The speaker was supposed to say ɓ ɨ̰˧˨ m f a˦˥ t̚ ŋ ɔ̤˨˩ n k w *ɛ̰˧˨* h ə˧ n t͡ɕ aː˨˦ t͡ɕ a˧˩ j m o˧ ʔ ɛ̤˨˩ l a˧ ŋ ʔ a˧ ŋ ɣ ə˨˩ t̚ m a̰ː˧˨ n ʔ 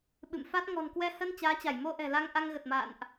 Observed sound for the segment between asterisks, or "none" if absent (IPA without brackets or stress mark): ɛ˧